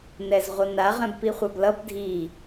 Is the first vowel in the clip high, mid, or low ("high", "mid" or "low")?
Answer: mid